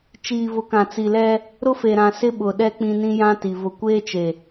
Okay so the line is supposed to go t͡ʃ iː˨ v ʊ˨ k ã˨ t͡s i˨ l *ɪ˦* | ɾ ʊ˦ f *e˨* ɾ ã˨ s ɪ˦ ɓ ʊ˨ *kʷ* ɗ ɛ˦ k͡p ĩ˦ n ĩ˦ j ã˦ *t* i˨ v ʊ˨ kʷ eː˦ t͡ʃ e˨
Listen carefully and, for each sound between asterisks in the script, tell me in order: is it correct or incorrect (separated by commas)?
incorrect, correct, incorrect, correct